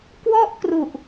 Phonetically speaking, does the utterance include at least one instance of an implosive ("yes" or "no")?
no